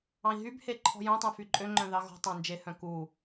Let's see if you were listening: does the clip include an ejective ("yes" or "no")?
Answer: yes